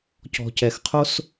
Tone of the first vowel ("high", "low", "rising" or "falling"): low